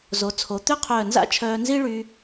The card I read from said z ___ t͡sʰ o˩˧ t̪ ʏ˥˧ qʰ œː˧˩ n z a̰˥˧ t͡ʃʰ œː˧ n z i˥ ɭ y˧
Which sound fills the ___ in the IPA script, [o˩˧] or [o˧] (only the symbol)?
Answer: o˩˧